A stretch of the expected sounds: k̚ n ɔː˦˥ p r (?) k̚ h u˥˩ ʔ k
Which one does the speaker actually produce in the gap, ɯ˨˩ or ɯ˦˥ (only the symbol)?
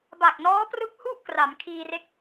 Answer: ɯ˦˥